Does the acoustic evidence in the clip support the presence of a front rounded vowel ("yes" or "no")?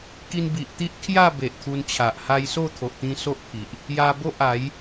no